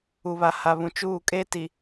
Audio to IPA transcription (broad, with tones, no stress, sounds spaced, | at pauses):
u˨ β a˨ h a˨ β ũ˨ t͡ʃ uː˦˨ kʼ eː˦ t i˨